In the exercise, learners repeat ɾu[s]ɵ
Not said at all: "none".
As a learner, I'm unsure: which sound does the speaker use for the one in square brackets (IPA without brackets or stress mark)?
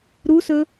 s